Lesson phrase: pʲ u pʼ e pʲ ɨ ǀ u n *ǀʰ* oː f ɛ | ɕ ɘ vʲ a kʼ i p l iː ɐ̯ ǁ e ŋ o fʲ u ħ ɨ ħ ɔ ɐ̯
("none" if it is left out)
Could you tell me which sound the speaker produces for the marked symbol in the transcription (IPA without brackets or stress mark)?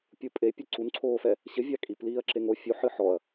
ǀʰ